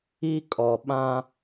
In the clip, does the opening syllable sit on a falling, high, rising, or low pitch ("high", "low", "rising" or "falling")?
high